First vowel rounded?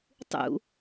yes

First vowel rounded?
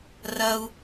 no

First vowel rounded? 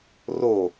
yes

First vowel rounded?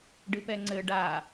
no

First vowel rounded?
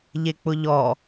no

